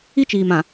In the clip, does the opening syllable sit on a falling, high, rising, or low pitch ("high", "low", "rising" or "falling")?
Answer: high